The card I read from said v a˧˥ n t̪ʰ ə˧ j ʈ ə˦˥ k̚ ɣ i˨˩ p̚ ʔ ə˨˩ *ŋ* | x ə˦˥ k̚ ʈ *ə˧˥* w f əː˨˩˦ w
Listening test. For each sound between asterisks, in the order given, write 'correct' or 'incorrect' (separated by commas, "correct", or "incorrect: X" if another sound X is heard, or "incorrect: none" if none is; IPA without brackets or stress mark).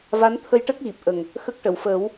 correct, incorrect: ə˨˩˨